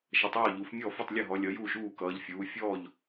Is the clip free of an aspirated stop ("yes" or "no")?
yes